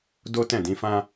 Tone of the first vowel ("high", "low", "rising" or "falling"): high